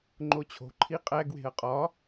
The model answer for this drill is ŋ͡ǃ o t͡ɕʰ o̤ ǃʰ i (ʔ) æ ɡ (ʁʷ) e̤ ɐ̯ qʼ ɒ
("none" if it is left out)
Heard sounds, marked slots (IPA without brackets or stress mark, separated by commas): qʼ, w